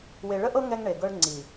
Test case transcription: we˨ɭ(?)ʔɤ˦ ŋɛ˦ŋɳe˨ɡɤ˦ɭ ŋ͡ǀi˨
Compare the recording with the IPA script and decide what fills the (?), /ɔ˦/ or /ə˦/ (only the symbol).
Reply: ə˦